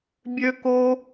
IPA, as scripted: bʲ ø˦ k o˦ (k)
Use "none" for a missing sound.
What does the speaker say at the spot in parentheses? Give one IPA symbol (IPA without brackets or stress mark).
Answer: none